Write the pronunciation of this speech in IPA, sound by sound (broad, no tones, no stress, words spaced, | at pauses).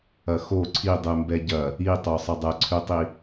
ɐxo ǀʰidˤʉmbɛ ɟɐ | itˤosˤə dˤɛǀʰʉtˤi